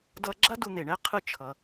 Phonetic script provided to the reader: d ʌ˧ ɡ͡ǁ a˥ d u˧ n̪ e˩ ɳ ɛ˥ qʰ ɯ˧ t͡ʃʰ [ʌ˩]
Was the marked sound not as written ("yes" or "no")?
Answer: no